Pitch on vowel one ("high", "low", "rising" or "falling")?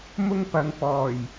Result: high